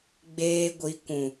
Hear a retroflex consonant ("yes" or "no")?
no